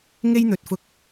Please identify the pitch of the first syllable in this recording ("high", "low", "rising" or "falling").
high